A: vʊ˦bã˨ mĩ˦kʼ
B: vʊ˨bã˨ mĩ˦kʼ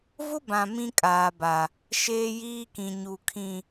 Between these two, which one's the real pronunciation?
A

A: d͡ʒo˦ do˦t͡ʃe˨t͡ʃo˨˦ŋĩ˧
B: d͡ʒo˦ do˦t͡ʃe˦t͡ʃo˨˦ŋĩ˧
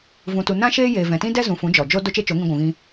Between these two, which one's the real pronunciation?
B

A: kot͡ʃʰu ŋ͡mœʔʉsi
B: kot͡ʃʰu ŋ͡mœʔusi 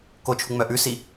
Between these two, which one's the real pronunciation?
A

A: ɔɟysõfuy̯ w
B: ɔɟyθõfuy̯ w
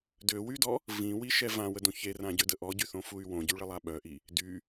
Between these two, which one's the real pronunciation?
B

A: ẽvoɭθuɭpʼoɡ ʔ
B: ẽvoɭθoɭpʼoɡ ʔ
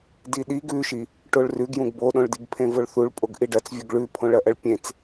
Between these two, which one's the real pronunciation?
A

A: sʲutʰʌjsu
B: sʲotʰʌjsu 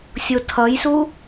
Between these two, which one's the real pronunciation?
B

